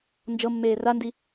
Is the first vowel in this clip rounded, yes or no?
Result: no